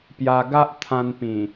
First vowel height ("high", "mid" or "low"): low